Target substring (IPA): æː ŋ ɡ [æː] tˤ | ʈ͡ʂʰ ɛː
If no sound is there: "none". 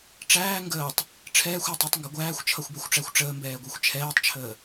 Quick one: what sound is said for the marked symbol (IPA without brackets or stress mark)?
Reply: əː